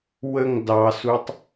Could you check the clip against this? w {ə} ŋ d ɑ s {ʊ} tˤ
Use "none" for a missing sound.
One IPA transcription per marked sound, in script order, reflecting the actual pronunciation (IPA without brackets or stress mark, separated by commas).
ə, u